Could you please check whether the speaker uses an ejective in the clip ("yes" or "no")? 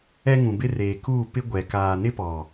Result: no